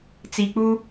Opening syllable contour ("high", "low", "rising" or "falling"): low